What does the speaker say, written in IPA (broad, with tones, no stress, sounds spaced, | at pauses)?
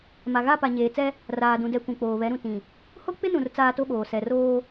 m a˨ ɣ a˦˨ p a˨ ɲ eː˨ t͡s ɛ˦ | r aː˨ d ũ˨ d ɛ˨ kʷ ũ˨ k͡p oː˨ β ɛ˨˦ ɾ ũ˨ t ĩ˨ | h o˦ k͡p ɪ˦ n ũ˨ r t͡s aː˦ t o˦ ɓ oː˨ s ɛ˨ r oː˦